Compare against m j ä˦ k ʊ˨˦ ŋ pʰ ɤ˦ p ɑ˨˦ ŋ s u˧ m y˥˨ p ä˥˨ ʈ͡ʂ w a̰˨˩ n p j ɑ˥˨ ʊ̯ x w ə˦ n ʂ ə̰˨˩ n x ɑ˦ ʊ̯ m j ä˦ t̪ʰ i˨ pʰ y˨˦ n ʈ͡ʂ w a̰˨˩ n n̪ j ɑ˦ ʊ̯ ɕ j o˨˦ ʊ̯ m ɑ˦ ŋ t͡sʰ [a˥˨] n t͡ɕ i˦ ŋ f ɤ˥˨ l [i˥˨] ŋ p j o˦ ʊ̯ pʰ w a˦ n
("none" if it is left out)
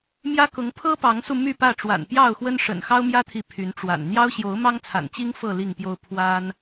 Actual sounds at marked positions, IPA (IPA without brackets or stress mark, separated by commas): a̰˨˩, i˥˨